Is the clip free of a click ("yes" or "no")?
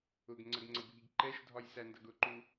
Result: no